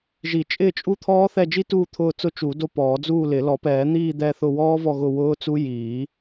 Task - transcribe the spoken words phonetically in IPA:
ʒ i˨˩˦ t͡ʃʼ ɪː˦˨ t͡ʃʼ u˦˨ t̪ʰ ɔː˦˥ θ ɛ˦˨ d͡ʒ i˦˥ t uː˦˨ t̪ʰ ʊː˦˨ t͡s ʊ˦˥ t͡ʃ u˨˩˦ d o˦˨ p ɔː˨˩˦ d͡z uː˦˨ l ɪ˨˩˦ l ɔ˨˩˦ p ɛː˨˩˦ n̪ iː˦˨ d̪ ɛ˦˨ θ ʊ˦˨ w ɔː˦˥ v ɔ˦˨ ɣ ʊ˦˨ w ʊː˦˥ t͡s u˦˥ j iː˨˩˦

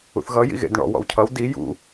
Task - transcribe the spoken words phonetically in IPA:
ṵ θ ɣ ʌ j ḭ ɣ ḛ d ɳ ɔ̰ w ɔ̰ w cʰ ʌ w d i j ṵ

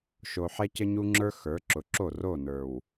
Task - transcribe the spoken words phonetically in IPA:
ʃ o˨ ħ ɛ˦ c ə˦ ɲ u˦ ŋ͡ǁ ə˞˦ x ə˞˨˦ ǁ ʊ˨˦ ǁ o˦˨ r o˦˨ n ə˞˨ w

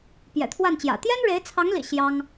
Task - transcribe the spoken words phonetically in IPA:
p j ɛ̰˨˩ t̪ʰ w a˥˩ n t͡ɕ j ä̰˨˩ t̪ j ɛ˥ n ɻ e˧˥ ɪ̯ t͡sʰ ɑ˧˥ ŋ l ḭ˨˩ ɕ j ɑ˥ ŋ

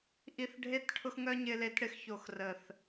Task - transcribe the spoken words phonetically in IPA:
ʔ i˧ θ ɖʱ e˦ t ʈʰ ʊ˦ x ŋ œ˦ ɲ ɪ˧ l e˨˦ t ɽ ɪ˧ x ç o˨ x r ə˨ θ

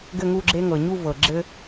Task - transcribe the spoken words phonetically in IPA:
ɡ ɘ˥˧ ŋ u˥˧ ɡ͡ǁ e˥ ŋ ɤ˨ ɲ u˥˧ v ɤ˨ ɡ͡ǁ ɘ˥

